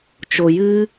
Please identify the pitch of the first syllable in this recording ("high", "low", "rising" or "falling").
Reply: low